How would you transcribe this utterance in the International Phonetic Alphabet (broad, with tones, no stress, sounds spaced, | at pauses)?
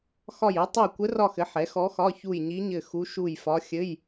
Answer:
x ɒ˦˨ j ɘ˧˥ tˤ e˦˨ j kʷ ɘ˧˥ r ɒ˦˨ x ɘ˩˥ ħ ɛ˩˥ x ɔ˧˥ x ɒ˧˥˧ ç u˦˨ j ɲ i˧˥ ɲ ɘ˦˨ x u˧˥ ʃ u˦˨ j f ɒ˧˥ xʲ ɘ˧˥˧ j